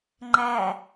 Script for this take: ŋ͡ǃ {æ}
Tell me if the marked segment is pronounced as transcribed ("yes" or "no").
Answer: yes